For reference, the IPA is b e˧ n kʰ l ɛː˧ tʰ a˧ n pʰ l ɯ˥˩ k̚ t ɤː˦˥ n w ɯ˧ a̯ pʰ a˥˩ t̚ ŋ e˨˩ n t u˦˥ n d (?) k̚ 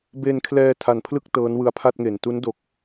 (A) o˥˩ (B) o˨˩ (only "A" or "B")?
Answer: B